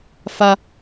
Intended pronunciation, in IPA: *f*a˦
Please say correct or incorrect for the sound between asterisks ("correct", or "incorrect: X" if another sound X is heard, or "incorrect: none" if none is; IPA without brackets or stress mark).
correct